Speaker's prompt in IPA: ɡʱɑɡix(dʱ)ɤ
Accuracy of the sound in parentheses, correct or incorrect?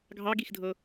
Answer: correct